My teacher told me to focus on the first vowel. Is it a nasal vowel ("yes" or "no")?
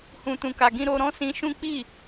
yes